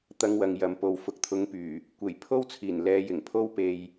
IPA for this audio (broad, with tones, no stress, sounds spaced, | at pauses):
t̪ ɐ˧ ŋ w ɐ˨ ŋ j ɐ˨ m p o˨ w f ʊ˧ k̚ t̪ʰ ʊ˨˥ ŋ p yː˨˩ | kʷ e˨˩ j pʰ o˥ w t͡sʰ iː˨˩ n l ɛː˨˧ j ɪ˨˩ ŋ pʰ o˥ w p e˧ j